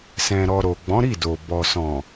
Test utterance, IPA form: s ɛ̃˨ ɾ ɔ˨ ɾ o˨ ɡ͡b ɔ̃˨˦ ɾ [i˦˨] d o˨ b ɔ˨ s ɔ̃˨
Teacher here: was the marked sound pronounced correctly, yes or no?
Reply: yes